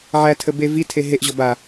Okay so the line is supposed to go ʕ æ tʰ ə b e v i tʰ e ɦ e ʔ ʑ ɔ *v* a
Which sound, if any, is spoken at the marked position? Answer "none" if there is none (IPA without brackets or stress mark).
b